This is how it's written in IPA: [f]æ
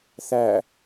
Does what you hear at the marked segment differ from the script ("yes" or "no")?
yes